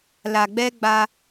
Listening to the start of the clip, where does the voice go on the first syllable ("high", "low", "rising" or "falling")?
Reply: low